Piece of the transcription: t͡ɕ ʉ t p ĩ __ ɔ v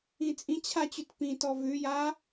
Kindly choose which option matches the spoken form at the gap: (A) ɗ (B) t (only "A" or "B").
B